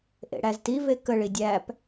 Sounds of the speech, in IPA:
ʔ ḛ ɽ æ z t i v e k ə ɭ i dʲ æ p

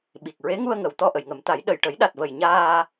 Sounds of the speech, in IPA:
ɓ i˨˩ k̚ ɹ e˧˥ ŋ u˧ ə̯ ŋ ə˨˩˨ w t̪ ɔ˧ ʔ ə˨˩˨ j ŋ ə˨˩˦ m t̪ a˨˩˦ j ɗ ə˨˩ j ʈ ə˨˩˦ j ɗ a˨˩ t̚ v ə˨˩ j ɲ aː˧

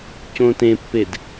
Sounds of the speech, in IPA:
c õ t ẽ pː e d

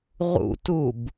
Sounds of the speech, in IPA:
ʁ ṵ t u b

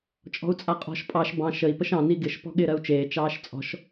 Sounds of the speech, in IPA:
t͡ʃʼ ɔ̤ u̯ t͡sʼ a qʼ ɔ̤ ʃ pʼ ɑ ʃ b ɑ̃ ʃ ə i̯ p ə ʃ ɑ̃ n i ɡ ɪ ʃ p ɔ̤ ɠ ɪː ɾ ɜ u̯ t͡ʃ eː t͡ʃ ɑː ʃ t͡sʼ ɔ̤ ʃ

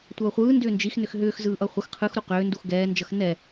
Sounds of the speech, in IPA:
tʷ ʌː χʷ ɯː n d ʏː n d͡ʒ i x n ʏ x ɦ ʏː x z ɯː ʔ ʌ χʷ ə x qʰ ɯ x ɾ u q ʏː n d u x ɡ ɛː n d͡ʒ ʌ x n ɛ

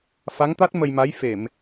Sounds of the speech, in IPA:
f a˧˥ ŋ t̪ a˦˥ t̚ m ə˧ j m a˧˥ j f e˨˩˨ m

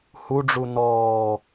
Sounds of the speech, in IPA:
h u ɖ͡ʐ u n ɔː

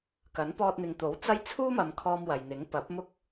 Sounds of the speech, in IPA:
k ɐ˨˥ n p ɔː˧ t̚ n̪ ɪ˨ ŋ t̪ o˨˥ w t͡s ɐ˥ j t͡sʰ uː˥ m ɐ˨ m kʰ ɔː˧ m w ɐ˨ j n̪ ɪ˨˥ ŋ p ɐ˨˥ p̚ m ʊ˥ k̚

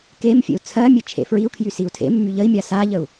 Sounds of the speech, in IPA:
k e m fʲ ḛ u̯ t͡sʰ ɜ mʲ e t͡ʃʰ ḛ f ɹ i u̯ kʰ j y s i u̯ tʰ ḛ mː y ʎ ə i̯ mʲ a s a ʎ ə u̯

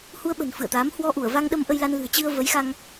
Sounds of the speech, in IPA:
h u˧ ə̯ ɓ ə̤˨˩ n f ɨ̰˧˨ ə̯ t̪ aː˨˦ m h w ɔ˧ ʔ u˧˩ ə̯ v a˧ ŋ ɗ ə˧ m ʔ ə˧ j l a˧ n l ɨ̤˨˩ ə̯ t͡ɕ ɨ˧ ə̯ v ə˨˦ j x a˧ ŋ

